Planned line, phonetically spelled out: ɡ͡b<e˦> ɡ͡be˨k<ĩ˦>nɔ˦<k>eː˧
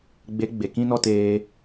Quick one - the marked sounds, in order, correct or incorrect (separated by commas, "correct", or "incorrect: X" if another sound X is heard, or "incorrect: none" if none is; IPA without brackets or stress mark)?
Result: incorrect: e˨˦, correct, incorrect: t